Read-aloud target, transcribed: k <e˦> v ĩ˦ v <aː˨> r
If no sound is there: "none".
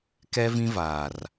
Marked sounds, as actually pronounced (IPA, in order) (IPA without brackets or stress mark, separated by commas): ɛ˦, aː˨